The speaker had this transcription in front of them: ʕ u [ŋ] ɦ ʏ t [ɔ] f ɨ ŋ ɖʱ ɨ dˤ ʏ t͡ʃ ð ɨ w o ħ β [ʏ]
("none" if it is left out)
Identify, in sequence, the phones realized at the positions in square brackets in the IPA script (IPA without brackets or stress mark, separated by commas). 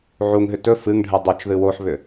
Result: ŋ, ɵ, ʏ